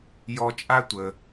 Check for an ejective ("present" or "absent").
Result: present